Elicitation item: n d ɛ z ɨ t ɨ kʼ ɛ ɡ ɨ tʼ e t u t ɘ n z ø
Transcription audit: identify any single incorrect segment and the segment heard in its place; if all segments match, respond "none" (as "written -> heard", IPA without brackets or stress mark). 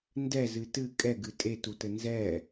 ø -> ɛ